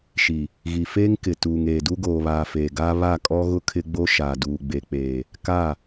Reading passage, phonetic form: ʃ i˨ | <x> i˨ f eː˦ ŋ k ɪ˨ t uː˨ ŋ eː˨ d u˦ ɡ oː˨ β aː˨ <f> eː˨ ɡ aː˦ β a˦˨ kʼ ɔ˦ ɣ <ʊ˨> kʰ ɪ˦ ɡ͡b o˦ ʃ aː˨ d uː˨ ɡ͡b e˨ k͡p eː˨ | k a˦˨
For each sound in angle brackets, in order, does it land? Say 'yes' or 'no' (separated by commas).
no, yes, no